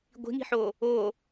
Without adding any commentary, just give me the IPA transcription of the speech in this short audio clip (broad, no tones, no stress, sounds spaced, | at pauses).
ɡʷ i̤ ŋ i̤ ħ o | o